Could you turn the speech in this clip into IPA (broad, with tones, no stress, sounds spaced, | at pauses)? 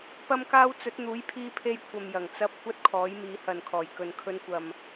p ɐ˥ m k aː˥ w t͡s ɵ˨˥ t̚ n̪ uː˨˥ j pʰ iː˧ pʰ e˧ j kʷʰ ɐ˨ m j ɐ˨˩ ŋ t͡s ɐ˧ p̚ kʷ ɐ˥ t̚ kʰ ɔː˨˥ j m iː˨˧ h ɐ˨ n kʰ ɔː˨˩ j k ɵ˨ n kʰ ɵ˧ n kʷ ɐ˨ m